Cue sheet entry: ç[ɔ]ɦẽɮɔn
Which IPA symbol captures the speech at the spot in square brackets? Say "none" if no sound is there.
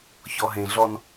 ɔ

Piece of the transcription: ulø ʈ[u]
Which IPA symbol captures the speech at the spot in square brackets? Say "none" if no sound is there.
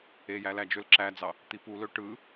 ɯ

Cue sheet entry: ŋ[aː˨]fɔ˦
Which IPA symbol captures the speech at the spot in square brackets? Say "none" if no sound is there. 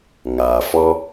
aː˨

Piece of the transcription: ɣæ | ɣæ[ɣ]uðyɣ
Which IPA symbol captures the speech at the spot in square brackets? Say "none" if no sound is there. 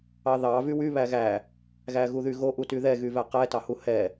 ɣ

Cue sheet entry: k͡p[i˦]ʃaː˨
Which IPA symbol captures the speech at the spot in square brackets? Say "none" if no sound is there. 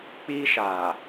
iː˦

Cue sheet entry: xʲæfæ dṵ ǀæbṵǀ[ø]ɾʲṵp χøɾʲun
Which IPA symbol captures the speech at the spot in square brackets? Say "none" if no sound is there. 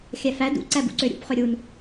ø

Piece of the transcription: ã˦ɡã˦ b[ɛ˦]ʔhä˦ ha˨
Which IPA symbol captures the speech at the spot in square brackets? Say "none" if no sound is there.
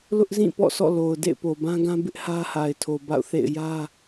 ɪ˦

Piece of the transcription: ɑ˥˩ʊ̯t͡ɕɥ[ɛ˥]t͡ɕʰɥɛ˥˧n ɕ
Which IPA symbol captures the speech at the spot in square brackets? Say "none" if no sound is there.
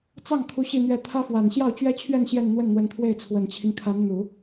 ɛ˥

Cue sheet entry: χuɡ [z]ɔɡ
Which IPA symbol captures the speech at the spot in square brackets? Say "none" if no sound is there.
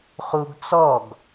t͡s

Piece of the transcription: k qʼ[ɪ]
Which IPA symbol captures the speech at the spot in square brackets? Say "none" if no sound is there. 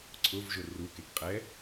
ɛ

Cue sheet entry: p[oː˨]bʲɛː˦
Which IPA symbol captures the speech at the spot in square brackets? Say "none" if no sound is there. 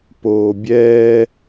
oː˨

